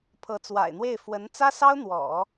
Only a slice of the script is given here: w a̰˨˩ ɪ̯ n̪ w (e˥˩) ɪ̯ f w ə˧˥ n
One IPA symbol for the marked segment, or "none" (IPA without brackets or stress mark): e˥˩